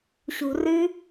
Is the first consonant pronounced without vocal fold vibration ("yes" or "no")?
yes